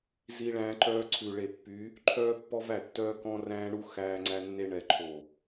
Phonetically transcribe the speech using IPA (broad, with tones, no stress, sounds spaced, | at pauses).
z i˦ ɭ æ̃ː˦ ǃ œː˦ ǀʰ ʉ˨ ɭ e˨ pː y˨˦ | ǃʰ œː˦ pː ɔ˦ v æ˦˨ tː œː˦ k ɔ̃˦ r æ̃ː˦ ɳ u˦ x æː˦ ŋ͡ǀ æ˦ nː e˦ ɳ ɛ˨ ǃʰ o˨